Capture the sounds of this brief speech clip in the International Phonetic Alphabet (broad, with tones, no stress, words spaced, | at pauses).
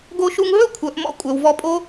ɡo˧ʃu˧ŋɦɵ˥ kʷʰœ˩˥ʔmɔ̰˥kʷʼœ˩wvɔ˥ pʼo˥